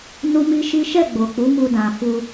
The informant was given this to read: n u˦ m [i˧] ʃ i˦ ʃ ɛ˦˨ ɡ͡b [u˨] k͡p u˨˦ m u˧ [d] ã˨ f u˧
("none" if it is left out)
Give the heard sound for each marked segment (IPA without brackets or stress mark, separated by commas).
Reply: i˦, o˨, d